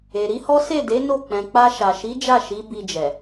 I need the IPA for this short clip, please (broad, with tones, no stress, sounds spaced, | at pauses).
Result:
e˨ ɾ i˨˦ h ɔ˦ s e˦˨ d e˨˦ n o˦˨ k͡p ɛ̃˨ k͡p a˧ ʃ a˨ ʃ i˨˦ d͡ʒ a˦˨ ʃ i˨˦ b i˧ d͡ʒ ɛ˨